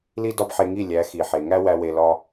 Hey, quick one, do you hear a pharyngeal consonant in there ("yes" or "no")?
yes